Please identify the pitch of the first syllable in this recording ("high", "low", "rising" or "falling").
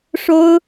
high